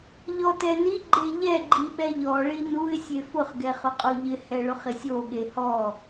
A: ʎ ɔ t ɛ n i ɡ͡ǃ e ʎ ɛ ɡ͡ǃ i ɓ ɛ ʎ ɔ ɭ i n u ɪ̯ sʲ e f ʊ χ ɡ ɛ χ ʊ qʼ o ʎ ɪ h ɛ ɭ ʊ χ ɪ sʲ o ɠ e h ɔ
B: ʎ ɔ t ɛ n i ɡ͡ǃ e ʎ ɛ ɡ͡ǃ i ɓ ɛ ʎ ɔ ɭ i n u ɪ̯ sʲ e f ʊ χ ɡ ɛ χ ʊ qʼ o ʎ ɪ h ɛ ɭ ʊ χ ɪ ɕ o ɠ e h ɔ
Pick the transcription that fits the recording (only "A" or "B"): A